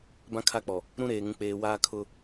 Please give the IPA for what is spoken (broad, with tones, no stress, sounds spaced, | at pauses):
b ã˦ kʰ a˦ k͡p ɔ˨ | ɾ ũ˦ ɾ eː˨ ŋ ũ˨ k͡p eː˨ w aː˦ kʰ ʊ˦